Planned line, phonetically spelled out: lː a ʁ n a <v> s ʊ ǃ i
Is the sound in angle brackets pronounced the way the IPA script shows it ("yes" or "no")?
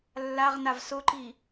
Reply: yes